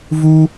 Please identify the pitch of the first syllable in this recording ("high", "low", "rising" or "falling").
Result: high